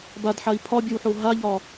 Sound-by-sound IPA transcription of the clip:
b a d ħ a i̯ pʰ ɒ bʲ œ w ħ o ɦ a ʎ ɒ

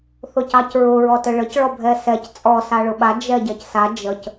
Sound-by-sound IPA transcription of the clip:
θ ʊ c ɑ c ɹ ʊ ɹ ɔ t ɘ ɭ ə c ɭ ɔ bʱ ɛ s ɛ c t͡sʼ ɔ s a ɭ ʊ ɓ a d͡ʒ ɛ ɟ ɛ c s a d͡ʒ ə c

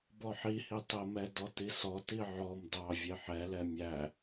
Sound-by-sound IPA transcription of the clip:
b ɔ ħ i h i tˤ ə m ɛ d ɔ t i s ɔ t i ʕ ɔ m d ɑ vʲ e ħ ɛ l ɛ mʲ æ

